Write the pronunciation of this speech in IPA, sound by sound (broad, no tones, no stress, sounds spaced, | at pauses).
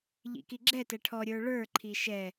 ʎ ḭ k i ɡ͡ǁ ɛ t ɛ ʈʰ ɔ ɾʲ ə˞ ɭ ə˞ ǃʰ i ʃ ɛ